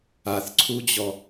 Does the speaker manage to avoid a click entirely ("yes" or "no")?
no